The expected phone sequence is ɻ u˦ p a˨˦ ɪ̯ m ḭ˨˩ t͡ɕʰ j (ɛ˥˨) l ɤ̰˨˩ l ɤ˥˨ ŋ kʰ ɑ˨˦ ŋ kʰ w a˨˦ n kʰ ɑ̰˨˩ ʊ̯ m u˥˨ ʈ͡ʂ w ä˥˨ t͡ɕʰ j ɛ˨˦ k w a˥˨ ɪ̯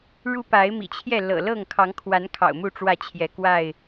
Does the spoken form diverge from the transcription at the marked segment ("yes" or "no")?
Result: no